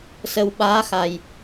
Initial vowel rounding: unrounded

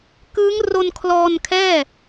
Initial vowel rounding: unrounded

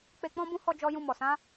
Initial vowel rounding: unrounded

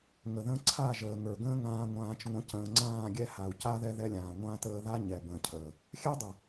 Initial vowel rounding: unrounded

